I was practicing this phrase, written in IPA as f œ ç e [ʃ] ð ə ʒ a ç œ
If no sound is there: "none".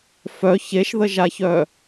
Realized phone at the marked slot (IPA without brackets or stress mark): ʃ